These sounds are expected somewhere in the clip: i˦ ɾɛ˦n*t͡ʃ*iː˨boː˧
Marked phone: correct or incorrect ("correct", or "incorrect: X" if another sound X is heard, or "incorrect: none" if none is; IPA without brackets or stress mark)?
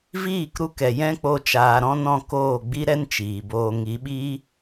correct